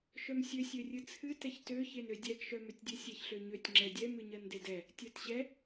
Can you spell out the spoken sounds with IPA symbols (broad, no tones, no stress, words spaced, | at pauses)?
ʃœmsʲø sʲørʲɨt͡sʰɨ tɛçtø çenødʲɛɡ ʃœmøtʲdʲɨsʲɛç ɬøɲøtʲ ŋ͡ǁɛdʲɛ mɨɲɜndedɛ | tʲɜtɕɛ